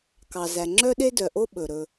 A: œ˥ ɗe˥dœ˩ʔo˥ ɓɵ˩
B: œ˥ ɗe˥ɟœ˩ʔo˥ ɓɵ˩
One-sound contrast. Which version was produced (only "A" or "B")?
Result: A